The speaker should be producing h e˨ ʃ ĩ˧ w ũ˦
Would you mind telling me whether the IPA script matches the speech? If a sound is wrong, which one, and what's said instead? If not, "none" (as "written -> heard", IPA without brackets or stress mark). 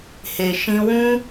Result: none